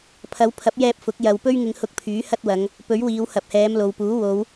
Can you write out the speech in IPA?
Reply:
pʰɐ˨˥wpʰɐ˨˥p̚jɛː˧p̚ fʊ˨˥k̚jɐ˨w pɵ˥ɥŋɪ˧ŋhʊ˧k̚pʰyː˨˥ hɐ˥t̚wɐ˨˧ŋ | pɵ˨˥ɥwiː˨˧whɐ˨p̚hɛː˨˧m lo˨wpuː˨˥ wo˨˧w

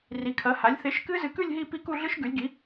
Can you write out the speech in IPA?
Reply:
ri˨˥kʰɐ˨˥ha˨˥lʲ θe˨˥ʃkɨ˦˥zɨ˧kʉ˥˧lʲ ɦi˥˧ pi˥˧ku˥˧ɮɨ˦˥ʃ ɡʉ˨˥lʲɡi˨˥

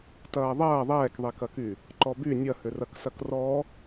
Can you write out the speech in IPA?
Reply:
tɐːðˤɐː ðˤɛːkðˤikɐky | ǃɔby nʲɐhʏrɐksɐk rɔ

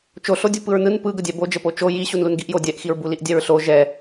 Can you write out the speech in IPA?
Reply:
t͡ʃoɬodʲu pɯɹnɯn pɯɡədʲɛ bod͡ʒəpo t͡ʃo ji ɕunlunɡiʔjo dʲɛʔxiɹ buliʔdʲɛɹɬo ʒɛ

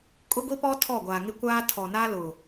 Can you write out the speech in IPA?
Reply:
kʼʊ˦ɡʷi˦pɔ˦ tʰɔ˦˨ɡʷaː˨ŋɪ˦ kʷaː˦ tʰɔ˨ na˦ lʊ˨

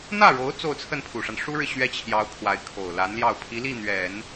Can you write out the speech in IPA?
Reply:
n̪ä˥˩ɻo˧˥ʊ̯ t͡so˥˧ʊ̯t͡sʰə˥˩npʰu˨˩ʂa˦n ʂu˥ɻɻ̩˨ ɕɥɛ˥t͡ɕʰjɑ˧˥ʊ̯ kʰwa˧˥ɪ̯kʰo˨˩ʊ̯la˧˥nljɑ˥˩ʊ̯ pʰi˧˥li˥˩n̪ɥɛ˨˩˦n

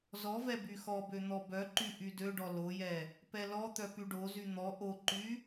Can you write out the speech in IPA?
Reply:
zɔvɛ byxɔbø n̪ɔbœǃy ʔydøɖɔ lojɛ | pɛlɔt̪œ pyɖozy n̪ɔ ʔoǃy

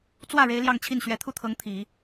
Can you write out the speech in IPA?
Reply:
t͡swä˥˩ ɻe˥ɪ̯ljɑ˥˧ŋt͡ɕʰi˥˩n ɕɥɛ˧˥ t̪ʰu˥˩t̪ʰɤ˧˥ŋ t̪ʰi˨˩˦

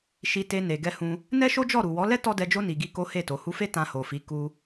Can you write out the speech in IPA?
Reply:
ʃi˧te˧ ne˨ɡɛ˧hũ˧ | nɛ˦ʃo˦d͡ʒɔ˦˨ ɾu˨wɔ˨˦lɛ˦ tɔ˦dɛ˧d͡ʒo˦ ni˧ɡi˦ ko˦he˦˨to˨˦ hu˧fe˦ tã˧ho˨fi˨˦ ku˧

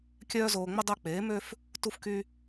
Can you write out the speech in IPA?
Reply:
kʲœː˧zoː˨ŋ͡mə˧ dˤœ˧k͡peː˨˦mø˦f | tu˧fky˧

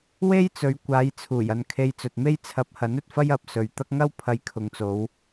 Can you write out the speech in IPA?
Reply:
we˥jt͡sɵ˨˧ɥ kʷaː˨˧jt͡sʰuː˨˩j ɐ˧n kʰe˧jt͡sɵ˨t̚me˥j t͡sʰɐ˨˥p̚hɐ˨˥n ɵ˨t̚fɐ˥jɐ˨p̚ sɵ˨ɥt̪ɐ˥k̚ ŋɐ˥wpʰɐ˨˧j kʰʊ˨ŋt͡so˨˧w

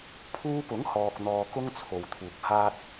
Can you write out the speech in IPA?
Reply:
pʰuː˧pʊ˨˥ŋ hɔː˧k̚n̪ɔː˧ kʊ˥ŋt͡sʰo˨wt̪ʰuː˨k̚ haː˥t̚

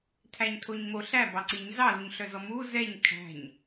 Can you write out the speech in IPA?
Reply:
tʰæɲ tʰoɲmo ɬæ bɑǀiɲ zɑluɲɬœzɔ mu zɛɲ kʰæ̤ɲ

